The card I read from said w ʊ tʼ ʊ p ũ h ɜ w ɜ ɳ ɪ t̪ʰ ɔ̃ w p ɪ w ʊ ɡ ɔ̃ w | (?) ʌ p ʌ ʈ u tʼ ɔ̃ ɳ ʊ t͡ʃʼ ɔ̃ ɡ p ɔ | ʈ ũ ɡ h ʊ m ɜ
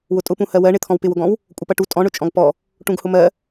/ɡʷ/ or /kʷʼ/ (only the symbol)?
kʷʼ